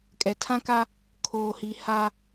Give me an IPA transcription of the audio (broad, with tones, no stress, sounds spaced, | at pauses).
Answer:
kʼ ɛ˨ tʰ ã˦ k a˦ | kʰ oː˨ h i˨ h a˦